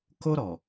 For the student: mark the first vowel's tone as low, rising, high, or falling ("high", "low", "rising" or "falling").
high